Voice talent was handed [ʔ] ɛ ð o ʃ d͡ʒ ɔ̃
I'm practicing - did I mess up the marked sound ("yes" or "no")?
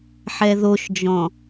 yes